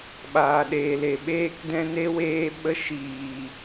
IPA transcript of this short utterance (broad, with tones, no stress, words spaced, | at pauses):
ɓaː˨ɗeː˨le˨ ɓeː˦kdɛ̃˦ne˦ weː˦ɓə˦ ʃiː˨